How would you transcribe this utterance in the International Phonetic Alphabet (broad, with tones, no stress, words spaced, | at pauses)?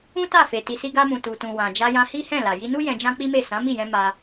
ũ˦ta˦˨fe˨ ti˨si˧ɡa˧mũ˨ tu˨tũ˨ wã˨ d͡ʒa˧jã˧hi˦hɛ̃˦˨ la˨ ji˧nu˦ jɛ̃˧d͡ʒã˦k͡pi˦me˦˨ sã˨˦mi˦˨jɛ̃˧ ma˧